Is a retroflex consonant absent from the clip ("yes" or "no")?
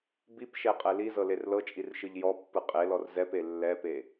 yes